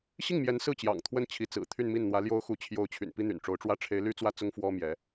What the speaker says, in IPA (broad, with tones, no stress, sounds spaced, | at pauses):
ɕ i˥˩ ŋ m j ɛ˧˥ n s ɹ̩˥˩ t͡ɕ j ɑ̰˨˩ ŋ t̪ʰ w ə˥ n t͡ɕʰ i˧˥ t͡s ɹ̩˨˩ t̪ʰ y˥˧ n m i˥˩ n n̪ w ä˧˥ l j o˥ ʊ̯ x u˧˥ t͡ɕʰ j o˧˥ ʊ̯ t͡ɕʰ y̰˨˩ n p i˥ n̪ y̰˨˩ n ʈ͡ʂ o˧˥ ʊ̯ ʈ͡ʂ w ä˥ ʈ͡ʂʰ e˧˥ ɪ̯ l y˥ t͡s w ä˥ t͡s ʊ˥ ŋ f w ɔ˥ m j ɛ˧˥